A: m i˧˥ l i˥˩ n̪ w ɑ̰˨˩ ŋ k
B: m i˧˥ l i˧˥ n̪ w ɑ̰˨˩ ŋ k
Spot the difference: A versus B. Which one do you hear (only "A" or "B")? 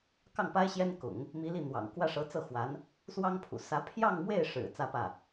A